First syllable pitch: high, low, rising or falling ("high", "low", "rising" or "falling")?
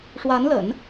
rising